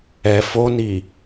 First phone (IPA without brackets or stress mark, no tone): ɛ